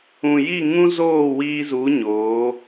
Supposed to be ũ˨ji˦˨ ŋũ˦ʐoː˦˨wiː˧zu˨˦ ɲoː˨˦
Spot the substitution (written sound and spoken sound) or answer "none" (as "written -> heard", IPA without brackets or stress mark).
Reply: ʐ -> z